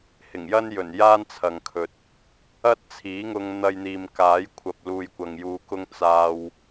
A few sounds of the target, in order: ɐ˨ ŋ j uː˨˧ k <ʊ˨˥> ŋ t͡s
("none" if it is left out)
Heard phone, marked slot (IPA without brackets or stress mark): ʊ˧